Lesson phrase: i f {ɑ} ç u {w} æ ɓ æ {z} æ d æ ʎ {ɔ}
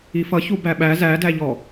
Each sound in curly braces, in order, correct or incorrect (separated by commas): incorrect, incorrect, correct, correct